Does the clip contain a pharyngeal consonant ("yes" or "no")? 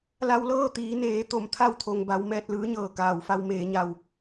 no